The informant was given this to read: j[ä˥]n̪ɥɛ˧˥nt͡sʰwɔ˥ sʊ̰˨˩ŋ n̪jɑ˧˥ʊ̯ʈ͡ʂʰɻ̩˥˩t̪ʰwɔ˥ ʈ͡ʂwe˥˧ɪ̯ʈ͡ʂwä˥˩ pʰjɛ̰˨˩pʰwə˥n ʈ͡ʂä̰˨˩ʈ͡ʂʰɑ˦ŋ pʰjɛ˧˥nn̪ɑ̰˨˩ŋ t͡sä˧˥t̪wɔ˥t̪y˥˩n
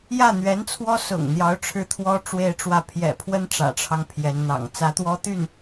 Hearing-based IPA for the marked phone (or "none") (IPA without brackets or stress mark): ä˥˩